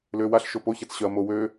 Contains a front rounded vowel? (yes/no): yes